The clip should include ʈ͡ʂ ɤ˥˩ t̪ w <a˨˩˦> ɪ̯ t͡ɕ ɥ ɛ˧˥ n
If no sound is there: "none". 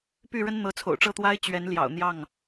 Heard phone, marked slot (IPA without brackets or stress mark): a˥